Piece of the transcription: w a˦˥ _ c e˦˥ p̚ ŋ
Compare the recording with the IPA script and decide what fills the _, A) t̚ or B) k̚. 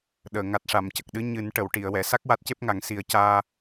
A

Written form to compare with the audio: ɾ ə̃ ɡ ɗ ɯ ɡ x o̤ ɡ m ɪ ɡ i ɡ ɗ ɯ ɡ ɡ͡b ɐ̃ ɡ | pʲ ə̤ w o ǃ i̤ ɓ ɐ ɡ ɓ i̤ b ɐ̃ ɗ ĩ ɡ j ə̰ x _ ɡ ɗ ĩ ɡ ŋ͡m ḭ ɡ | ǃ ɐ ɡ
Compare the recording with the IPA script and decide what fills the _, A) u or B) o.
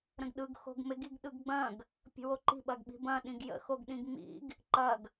B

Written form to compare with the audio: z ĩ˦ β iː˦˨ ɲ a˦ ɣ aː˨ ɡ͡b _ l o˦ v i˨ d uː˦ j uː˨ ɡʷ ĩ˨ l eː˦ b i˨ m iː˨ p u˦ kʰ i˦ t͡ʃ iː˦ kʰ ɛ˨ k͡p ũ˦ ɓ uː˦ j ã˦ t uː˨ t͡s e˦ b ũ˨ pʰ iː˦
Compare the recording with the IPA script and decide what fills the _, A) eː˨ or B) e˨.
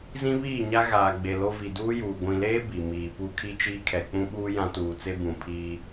B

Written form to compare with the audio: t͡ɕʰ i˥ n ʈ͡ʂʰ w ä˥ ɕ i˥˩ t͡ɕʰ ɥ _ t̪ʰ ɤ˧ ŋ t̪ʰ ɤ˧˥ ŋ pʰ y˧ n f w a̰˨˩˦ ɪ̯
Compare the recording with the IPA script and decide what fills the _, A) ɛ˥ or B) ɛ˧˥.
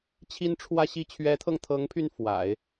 B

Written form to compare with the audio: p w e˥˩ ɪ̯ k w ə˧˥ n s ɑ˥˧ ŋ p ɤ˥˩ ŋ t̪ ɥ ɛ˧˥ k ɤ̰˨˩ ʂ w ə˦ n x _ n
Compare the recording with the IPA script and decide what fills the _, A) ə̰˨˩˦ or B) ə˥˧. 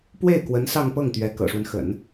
A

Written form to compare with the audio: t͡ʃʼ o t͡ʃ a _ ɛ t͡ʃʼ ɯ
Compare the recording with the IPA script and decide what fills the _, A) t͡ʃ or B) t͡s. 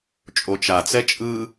B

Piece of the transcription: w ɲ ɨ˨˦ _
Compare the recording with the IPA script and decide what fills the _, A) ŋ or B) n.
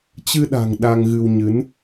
B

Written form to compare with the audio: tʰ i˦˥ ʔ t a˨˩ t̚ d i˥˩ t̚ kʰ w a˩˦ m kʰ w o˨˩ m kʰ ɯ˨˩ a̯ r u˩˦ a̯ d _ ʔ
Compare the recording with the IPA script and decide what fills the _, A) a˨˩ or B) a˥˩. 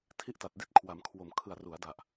A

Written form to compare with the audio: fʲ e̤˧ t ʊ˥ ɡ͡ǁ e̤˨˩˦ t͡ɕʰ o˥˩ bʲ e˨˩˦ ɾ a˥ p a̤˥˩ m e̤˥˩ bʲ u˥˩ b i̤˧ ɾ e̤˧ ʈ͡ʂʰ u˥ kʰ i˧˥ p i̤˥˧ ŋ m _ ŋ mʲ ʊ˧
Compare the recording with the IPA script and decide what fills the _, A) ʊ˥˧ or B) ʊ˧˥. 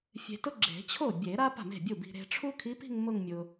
A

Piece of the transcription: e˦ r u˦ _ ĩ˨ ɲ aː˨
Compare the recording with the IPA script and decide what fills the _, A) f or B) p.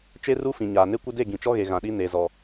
A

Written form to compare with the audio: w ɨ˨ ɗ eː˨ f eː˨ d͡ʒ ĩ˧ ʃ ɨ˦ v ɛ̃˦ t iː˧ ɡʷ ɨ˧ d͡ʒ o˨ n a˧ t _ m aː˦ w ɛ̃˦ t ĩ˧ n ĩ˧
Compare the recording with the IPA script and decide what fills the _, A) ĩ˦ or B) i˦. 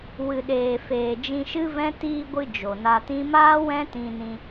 A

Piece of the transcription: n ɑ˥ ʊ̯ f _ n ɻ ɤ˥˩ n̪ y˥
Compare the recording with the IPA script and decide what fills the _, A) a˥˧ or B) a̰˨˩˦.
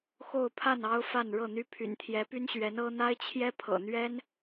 A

